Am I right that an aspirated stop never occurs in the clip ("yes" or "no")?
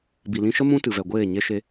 yes